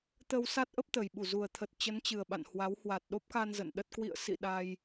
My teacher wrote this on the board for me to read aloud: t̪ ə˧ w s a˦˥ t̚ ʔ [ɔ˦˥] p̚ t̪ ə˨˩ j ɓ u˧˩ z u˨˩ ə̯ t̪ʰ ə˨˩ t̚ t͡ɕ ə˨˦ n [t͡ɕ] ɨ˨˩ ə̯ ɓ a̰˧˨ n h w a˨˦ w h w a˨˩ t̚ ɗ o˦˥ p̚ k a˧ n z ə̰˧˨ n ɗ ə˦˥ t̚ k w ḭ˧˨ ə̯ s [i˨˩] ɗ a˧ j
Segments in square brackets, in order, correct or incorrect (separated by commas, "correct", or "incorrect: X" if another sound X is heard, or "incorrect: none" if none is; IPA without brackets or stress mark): incorrect: ə˦˥, correct, incorrect: ḭ˧˨